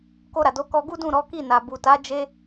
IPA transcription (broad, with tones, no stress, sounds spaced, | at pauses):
k o˧ ɾ a˨ d o˨˦ k ɔ˧ ɡ u˦ d ũ˦˨ ɾ ɔ˨˦ k i˦˨ n a˨ b u˨ t a˨˦ d͡ʒ e˦